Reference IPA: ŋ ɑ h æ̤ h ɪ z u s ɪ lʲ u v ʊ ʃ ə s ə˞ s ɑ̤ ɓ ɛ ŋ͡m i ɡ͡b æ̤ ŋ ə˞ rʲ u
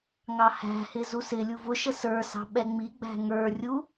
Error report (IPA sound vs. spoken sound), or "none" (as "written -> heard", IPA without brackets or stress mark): none